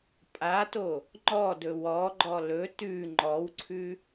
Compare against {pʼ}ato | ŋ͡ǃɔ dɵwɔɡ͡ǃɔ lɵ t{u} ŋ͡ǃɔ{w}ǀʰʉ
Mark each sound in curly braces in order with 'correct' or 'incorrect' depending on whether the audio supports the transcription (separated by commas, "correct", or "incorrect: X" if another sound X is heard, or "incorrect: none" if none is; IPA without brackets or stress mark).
correct, incorrect: ʉ, correct